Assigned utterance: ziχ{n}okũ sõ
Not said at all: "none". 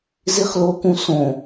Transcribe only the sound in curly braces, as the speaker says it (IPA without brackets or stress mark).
l